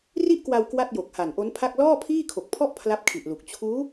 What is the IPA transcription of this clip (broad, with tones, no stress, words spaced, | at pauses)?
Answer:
ri˥˩ʔkwa˧w kwa˥˩t̚jo˨˩k̚ha˨˩nʔo˦˥n pʰa˥˩k̚ lɔː˥˩pʰiː˥˩kʰo˨˩k̚pʰɔ˥˩ʔ pʰla˥˩p̚kʰi˨˩ʔlu˨˩k̚ t͡ɕʰuː˦˥